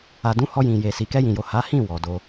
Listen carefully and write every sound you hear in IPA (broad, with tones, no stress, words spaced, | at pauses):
a˨dũ˨˦ hɔ˧jĩ˨je˨si˨ kɛ˧jĩ˨jo˨ ha˨˦hĩ˦˨ wɔ˨do˧